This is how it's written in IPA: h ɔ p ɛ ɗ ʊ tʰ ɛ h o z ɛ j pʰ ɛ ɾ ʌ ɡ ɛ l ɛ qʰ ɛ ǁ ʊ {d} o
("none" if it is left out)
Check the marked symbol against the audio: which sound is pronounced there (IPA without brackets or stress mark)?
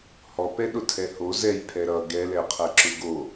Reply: ɡ